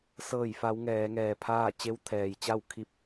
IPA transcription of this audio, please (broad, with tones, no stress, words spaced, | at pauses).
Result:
sɤː˧˩jfa˩˧w ŋɛː˩˧ŋɛː˩pʰaː˥˨ t͡ɕe˧˥wt̪ʰɛː˩jt͡ɕa˥˨w kʰi˧p̚